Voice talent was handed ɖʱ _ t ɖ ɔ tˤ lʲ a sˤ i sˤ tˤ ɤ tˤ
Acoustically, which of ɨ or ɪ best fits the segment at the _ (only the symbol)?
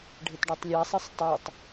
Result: ɪ